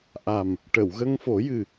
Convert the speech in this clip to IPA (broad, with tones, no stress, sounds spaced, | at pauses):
ʔ a˨˩ m | ʈ ə˨˩˨ w ɣ ə˧ ŋ f o˨˩˦ j ɨ˨˩